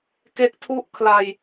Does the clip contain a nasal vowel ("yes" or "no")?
no